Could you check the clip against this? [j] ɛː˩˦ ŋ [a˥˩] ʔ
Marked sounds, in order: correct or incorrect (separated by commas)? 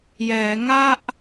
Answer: correct, correct